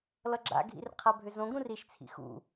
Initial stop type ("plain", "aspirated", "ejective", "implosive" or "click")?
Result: click